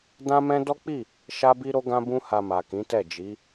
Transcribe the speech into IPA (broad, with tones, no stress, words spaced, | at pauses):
dã˦mɛ̃˦ dɔ˦k͡pi˦˨ | ʃa˦bi˦ɾo˦ ɡã˦bũ˦ha˧ma˨ kĩ˨˦tɛ˦˨d͡ʒi˨˦